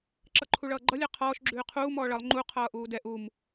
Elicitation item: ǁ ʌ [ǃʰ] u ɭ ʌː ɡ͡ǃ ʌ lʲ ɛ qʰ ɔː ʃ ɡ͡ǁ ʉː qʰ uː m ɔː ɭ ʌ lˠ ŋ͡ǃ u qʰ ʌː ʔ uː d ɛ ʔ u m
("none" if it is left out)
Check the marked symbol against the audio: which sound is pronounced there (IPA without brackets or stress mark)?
ǃʰ